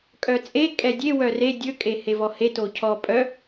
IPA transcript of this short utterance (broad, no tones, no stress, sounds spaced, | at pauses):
kʼ œ t͡sʼ e kʼ ɛ dʲ e w œ r e dʲ ɵ kʼ e h e v ɔ h e t o cʰ ɔ pʼ œ